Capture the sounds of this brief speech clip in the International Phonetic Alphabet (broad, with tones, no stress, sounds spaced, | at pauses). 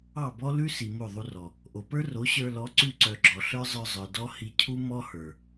ɑ˦˨ b ɔ˦ l ʉ˦ s i˨ m o˦˨ ðˤ u˧ r ɔ˨ | ʔ o˨ p ə˞˦ r o˨˦ ɕ ə˞˧ l ɔ˨˦ ǀ ʉ˧ ǀ œ˨ ɡ͡ǁ ɔ˨ ɬ ə˞˦ zˤ ə˞˧ zˤ ə˞˨ d ɔ˦ h i˧ cʰ u˦ m ɔ˦ h ə˞˨